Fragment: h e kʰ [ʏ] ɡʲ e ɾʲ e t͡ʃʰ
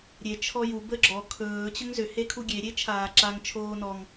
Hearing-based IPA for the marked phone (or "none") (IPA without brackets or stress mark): u